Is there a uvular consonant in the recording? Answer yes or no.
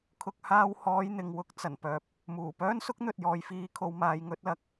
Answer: no